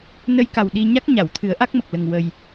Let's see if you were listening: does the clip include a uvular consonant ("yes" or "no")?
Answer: no